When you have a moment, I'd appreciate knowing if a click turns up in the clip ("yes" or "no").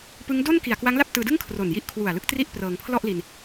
no